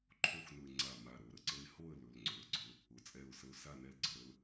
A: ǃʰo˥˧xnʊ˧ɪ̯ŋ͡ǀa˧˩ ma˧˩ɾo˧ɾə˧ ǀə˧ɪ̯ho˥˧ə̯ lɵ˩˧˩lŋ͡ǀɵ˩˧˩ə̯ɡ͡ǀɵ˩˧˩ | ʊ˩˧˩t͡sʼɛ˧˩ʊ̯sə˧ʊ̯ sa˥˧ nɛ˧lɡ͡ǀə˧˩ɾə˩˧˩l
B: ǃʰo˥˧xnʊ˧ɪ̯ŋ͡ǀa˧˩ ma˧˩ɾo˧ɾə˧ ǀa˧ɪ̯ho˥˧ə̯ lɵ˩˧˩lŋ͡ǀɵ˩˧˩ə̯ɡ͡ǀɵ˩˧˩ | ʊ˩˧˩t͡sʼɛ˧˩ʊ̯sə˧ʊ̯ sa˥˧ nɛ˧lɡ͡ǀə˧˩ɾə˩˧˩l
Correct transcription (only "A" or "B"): A